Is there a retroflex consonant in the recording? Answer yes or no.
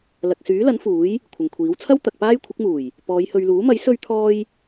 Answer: no